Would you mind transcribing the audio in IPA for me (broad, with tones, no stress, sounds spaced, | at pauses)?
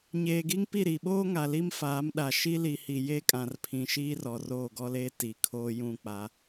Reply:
ɲ eː˨ ɡ i˦ ŋ p i˦˨ ɾ i˨ ɓ oː˦ ŋ a˨ l i˦ m f aː˨˦ m ɗ a˨ ʃ i˦ l i˨ h i˨ j e˦ kʼ ã˨ r pʰ ĩ˨ ʃ iː˦ r ɔ˨ r oː˦˨ ɡ ɔ˦ l eː˦ t i˨ kʰ oː˦ j ũ˦˨ k͡p a˨˦